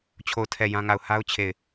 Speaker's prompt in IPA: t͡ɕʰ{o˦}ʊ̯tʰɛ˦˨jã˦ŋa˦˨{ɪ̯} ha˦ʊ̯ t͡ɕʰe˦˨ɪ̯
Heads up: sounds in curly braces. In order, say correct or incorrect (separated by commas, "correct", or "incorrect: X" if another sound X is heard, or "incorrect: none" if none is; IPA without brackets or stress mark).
incorrect: o˦˨, incorrect: ʊ̯